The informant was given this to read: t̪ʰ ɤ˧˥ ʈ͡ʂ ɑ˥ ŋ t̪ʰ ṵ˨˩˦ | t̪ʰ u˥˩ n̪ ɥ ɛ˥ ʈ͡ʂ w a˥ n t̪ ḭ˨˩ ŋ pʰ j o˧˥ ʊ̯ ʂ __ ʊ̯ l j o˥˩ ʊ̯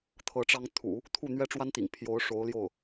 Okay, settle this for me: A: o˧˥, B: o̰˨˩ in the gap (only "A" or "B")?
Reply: A